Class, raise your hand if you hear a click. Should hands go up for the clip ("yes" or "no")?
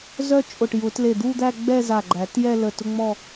yes